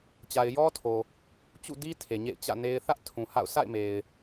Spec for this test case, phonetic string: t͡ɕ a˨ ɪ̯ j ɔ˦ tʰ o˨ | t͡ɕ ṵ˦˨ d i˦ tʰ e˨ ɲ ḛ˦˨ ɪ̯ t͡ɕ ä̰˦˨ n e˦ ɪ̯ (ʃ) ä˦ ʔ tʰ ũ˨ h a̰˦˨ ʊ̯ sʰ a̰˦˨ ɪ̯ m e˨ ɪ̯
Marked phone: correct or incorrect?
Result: incorrect